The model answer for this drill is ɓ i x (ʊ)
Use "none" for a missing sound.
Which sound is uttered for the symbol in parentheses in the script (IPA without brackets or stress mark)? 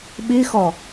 ɔ